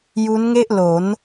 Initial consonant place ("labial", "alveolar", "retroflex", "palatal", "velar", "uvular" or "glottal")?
palatal